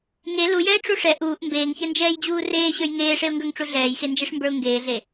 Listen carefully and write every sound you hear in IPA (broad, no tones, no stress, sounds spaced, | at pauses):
ŋ e l u j ɛ ɪ̯ ʈ͡ʂ u ʂ ɛ ʔ uː ʔ m b eː ŋ ç ɛ n d͡ʒ ɛː j d͡ʑ uː r eː ɕ ə˞ j ŋ eː ʂ e ʊ̯ ŋ ɡ ə˞ ŋ ʈ͡ʂ u ɮ ɛː j x e n d͡ʒ e ʂ m b ə˞ ʊ̯ ŋ ɡ eː ɮ e